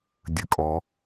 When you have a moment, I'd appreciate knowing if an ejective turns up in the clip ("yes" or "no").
yes